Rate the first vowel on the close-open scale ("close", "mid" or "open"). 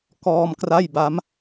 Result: mid